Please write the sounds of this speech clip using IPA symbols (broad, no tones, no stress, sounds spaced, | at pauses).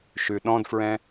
ʃ ʉ ɗ ɔ̃ d f ɹ ɛ̃